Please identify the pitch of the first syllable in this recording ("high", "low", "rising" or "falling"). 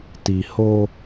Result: low